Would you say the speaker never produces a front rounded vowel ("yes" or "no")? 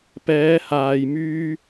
no